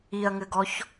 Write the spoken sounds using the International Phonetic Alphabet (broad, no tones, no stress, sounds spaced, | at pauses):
i ɐ̯ ŋ ɘ ɡ ɔ ç